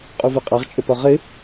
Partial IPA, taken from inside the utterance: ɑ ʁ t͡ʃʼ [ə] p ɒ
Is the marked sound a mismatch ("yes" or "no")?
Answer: no